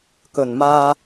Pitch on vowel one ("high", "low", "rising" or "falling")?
low